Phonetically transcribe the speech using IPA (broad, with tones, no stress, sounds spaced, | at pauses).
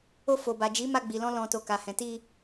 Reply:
o˧ f o˨ b a˨ d͡ʒ i˨˦ m a˧ ɡ͡b i˨ l ɔ̃˧ l ɔ̃˨ t o˨ k a˨ h ɛ̃˨ t i˧